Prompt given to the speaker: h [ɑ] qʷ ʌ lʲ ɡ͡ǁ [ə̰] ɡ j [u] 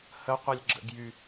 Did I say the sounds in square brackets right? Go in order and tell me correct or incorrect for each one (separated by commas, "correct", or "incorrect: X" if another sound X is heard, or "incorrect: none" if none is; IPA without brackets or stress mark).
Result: incorrect: ə, correct, incorrect: y